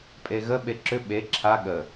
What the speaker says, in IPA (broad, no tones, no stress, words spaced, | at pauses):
pʼeɣə ɓeǁʏ ɓe ǁʰa ɠə